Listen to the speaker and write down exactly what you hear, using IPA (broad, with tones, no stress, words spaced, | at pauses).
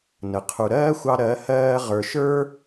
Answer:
nə˨ qʰu˨ɾɜː˦xʷɑ˧ ɾɜ˨˦ hɜː˧ ʁə˞˨ʃə˞˦